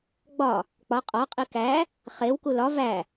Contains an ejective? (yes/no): yes